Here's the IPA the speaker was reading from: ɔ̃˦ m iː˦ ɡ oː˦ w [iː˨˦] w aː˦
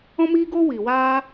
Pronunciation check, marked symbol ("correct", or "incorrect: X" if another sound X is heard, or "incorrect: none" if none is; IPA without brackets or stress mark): incorrect: iː˨